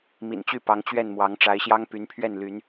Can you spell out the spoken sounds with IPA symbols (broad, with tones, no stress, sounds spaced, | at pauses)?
m ḭ˨˩ n t͡ɕ y˥˩ p ɑ˧˥ ŋ t͡ɕ ɥ ɛ˥˩ n m w ɑ˧˥ ŋ ʈ͡ʂ a˧˥ ɪ̯ ɕ j ɑ˥ ŋ p y˧˥ n pʰ ɥ ɛ˥˩ n l y˧˥ n